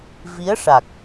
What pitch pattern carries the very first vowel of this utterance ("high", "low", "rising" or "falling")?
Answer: rising